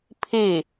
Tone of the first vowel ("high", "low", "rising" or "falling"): falling